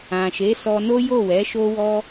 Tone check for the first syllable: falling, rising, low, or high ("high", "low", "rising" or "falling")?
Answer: low